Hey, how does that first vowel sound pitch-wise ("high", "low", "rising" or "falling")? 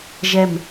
falling